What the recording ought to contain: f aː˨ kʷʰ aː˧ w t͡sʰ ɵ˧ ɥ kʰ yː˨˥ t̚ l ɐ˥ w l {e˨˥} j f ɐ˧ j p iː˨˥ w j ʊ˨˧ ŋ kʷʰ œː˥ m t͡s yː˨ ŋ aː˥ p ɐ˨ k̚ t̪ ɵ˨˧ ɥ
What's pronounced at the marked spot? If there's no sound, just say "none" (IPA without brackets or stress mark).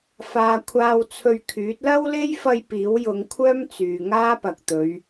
e˥